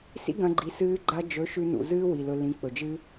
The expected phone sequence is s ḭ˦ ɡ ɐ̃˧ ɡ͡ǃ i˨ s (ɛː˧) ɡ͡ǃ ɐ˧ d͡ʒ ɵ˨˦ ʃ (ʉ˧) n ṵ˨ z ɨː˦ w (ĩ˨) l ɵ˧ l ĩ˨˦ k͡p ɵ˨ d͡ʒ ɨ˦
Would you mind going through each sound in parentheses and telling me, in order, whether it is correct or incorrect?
incorrect: ɨː˧, correct, incorrect: i˨

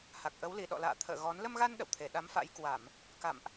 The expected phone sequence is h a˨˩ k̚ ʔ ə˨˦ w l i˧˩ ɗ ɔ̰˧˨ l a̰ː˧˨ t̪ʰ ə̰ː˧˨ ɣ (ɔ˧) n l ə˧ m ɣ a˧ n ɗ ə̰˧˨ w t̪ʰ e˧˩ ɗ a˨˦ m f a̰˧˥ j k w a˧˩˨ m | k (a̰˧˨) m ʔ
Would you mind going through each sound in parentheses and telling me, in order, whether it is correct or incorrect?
incorrect: ɔ˨˦, correct

